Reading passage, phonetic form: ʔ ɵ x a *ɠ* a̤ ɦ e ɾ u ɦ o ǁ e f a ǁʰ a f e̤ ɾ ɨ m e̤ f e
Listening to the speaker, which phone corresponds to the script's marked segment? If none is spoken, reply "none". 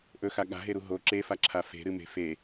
ɠ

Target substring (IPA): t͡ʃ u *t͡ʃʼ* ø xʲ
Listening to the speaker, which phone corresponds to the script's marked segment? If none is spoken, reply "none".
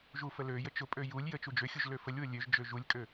d͡ʒ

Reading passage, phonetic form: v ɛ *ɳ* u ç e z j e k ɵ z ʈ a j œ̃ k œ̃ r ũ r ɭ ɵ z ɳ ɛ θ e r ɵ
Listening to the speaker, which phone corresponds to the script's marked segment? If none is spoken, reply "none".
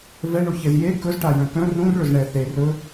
ɳ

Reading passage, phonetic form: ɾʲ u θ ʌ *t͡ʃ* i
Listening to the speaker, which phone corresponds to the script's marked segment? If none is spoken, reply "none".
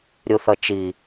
t͡ʃ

